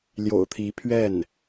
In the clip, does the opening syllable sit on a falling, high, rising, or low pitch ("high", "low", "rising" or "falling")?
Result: low